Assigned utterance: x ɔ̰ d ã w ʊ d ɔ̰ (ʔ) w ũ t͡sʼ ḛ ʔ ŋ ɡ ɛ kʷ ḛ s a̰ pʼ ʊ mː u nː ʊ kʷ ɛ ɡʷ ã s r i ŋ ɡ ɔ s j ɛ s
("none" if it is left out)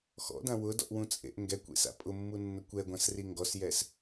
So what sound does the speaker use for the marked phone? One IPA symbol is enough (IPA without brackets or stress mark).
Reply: ʔ